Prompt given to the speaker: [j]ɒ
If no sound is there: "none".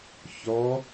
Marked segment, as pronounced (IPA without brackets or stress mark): ç